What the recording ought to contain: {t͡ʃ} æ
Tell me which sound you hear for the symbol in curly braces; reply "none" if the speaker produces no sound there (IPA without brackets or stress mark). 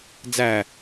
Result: d͡z